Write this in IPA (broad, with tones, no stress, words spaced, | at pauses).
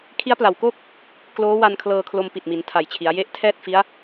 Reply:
kʰi˦˥a̯pla˩˦wkoː˥˩k̚ | kloː˦˥wa˧n kʰlɤː˧kʰlo˧mpi˨˩t̚ mi˩˦ntʰa˨˩jt͡ɕʰi˩˦a̯ je˦˥ʔ tʰɛː˥˩t̚fi˦˥a̯